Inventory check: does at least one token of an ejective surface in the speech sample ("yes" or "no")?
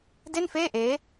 no